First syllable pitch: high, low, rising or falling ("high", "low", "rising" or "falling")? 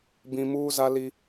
high